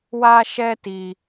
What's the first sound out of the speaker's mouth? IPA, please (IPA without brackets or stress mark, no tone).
w